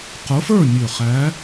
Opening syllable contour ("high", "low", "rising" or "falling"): rising